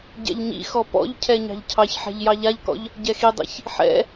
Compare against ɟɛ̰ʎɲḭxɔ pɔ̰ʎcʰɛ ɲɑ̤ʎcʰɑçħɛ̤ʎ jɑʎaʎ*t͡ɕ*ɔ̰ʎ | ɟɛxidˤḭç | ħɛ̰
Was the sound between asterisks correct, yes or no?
no